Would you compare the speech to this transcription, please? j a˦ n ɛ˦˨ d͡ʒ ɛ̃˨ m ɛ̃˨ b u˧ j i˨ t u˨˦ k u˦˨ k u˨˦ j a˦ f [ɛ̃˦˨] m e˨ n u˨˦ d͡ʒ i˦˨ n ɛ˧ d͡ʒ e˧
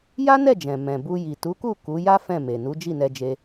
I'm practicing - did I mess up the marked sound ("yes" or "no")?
no